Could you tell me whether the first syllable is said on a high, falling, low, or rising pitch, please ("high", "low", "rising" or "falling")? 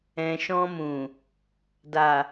low